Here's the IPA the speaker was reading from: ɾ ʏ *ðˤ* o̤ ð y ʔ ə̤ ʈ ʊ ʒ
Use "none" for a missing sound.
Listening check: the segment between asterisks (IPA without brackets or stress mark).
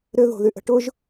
ð